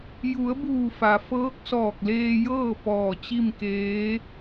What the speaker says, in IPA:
j u˩˧ ə̯ b uː˧˩ f a˩ f ɤː˧˥ k̚ s ɔː˧˩ k̚ l eː˧ j ɤː˥˨ p ɔː˧˩ t͡ɕ i˥˨ m k eː˧˥

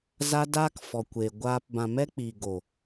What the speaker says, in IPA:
z a˦ d aː˦ k f ɔ˨ kʷ eː˨ ɡʷ aː˧ p b ã˨ m ɛ˧ k͡p iː˨ ɡ o˨

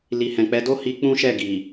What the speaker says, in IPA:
l i˨ h ɛ̃˨ k͡p ɛ˨˦ d o˦ h i˧ k͡p ũ˦ ʃ ɛ˦˨ ɡ i˨

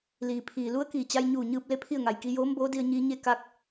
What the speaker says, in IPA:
l iː˩ pʰ iː˩ l u˧˥ ə̯ k iː˧˩ t͡ɕ a˧ j ɲ uː˧˩ ɲ ɯː˧ p̚ l e˥˨ pʰ i˥˨ ə̯ ŋ a˩ j k i˧ j oː˧˥ m b oː˧˥ d i˧ ə̯ ɲ iː˧˥ ɲ e˥˨ k a˧ k̚

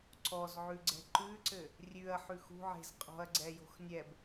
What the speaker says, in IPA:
ǀ ɔ z ʕ ʉ ɡ͡ǀ ɛ̤ ǃ ʉ ǀ ɘ | rʲ ʉ ɐ̯ ħ ʉ x ṳ ʕ e̤ z qʼ ɔ̤ ɐ̯ ɡ͡ǀ ɛ j o̤ x nʲ ɛ b

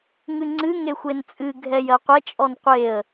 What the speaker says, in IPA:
ŋ ɨ ŋ͡ǀ ɨ ŋ e xʷ e n t͡sʼ ɨ ɡʱ ɛ j ɜ qʷ ɛ t͡ʃʼ ɔ n qʷ e ə̯

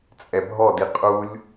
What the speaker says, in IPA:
t͡sʼ ɛ bʱ ɔ d i qʼ u lʲ

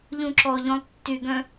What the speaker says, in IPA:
ʎ ũ ǁ ɔ ʎ õ lˠ tː y ɡ œ̃

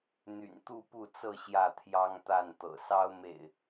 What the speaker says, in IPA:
n̪ y̰˨˩ n t̪ u˥˨ p u˥˨ t͡s ɤ˥˨ ɕ j ä˥˨ t̪ʰ j ɑ˦ ŋ t̪ a˥˨ n t̪ ɤ̰˨˩ s ɑ˦ ʊ̯ m ḛ˨˩ ɪ̯

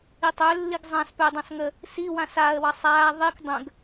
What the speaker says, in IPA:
i tˤ ø lː i ɡ zˤ ã s p ø dˤ ɑ̃ s ŋ ə | s i w ã s aː ə̯ w ɑ sˤ aː ðˤ i k dˤ ə̃ ɡ

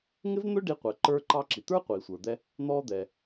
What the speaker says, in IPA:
ŋ ɪ˥ v n̪ ʊ˥ ɖ i˧ qʷ ɛ˩ ǃ ə˞˧ ǃ ɑ˧ ǁ i˩ t̪ ə˞˥ qʷ i˩ sʷ ə˞˩ d̪ ɛ˧ | n̪ ɔ˧ d̪ ɛ˩

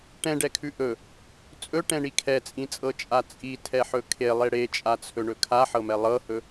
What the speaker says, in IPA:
ʈ ɛ̃ ɖ ɛ kʰ ʉ ʔ ɵ | t͡sʼ ɵ ʈ ɛ̃ ɳ i kʰ ɛ t͡sʼ ĩ t͡sʼ ɤ t͡ʃʼ a t͡sʼ i tʰ ɛ ħ ɵ kʰ e lˠ e ɽ e t͡ʃʼ a t͡sʰ ɵ ɳ ɵ kʰ a ħ ɤ m ɛ lˠ ɤ h ɵ

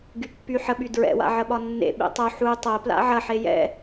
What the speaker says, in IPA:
ɡ y pː y ħ ə ɓ y d ɹ ɛ̰ w a̰ ʕ ə ɓ ɒ nː ḛ ɓ ḛ tˤ o ħ u tˤ o p l a̰ ʕ ɐ ħ e j ɛ̰

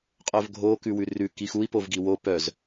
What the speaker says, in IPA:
qʼ œ v ɡʱ o k ʉ w ʉ r ʉ k i x u i̯ p o v ɡ i w o p œ z

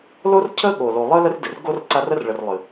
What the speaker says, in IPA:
l o˥ r cʰ ə˥ ɠ o˨ l o˨ lˠ ə˥ l ə˦ r d ɨ˩ r ɡ o˦ r ǀ a˦ r ə˥ r ɭ ə˨ r lˠ ɨ˩

